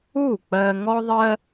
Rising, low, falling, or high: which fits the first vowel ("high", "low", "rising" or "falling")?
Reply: falling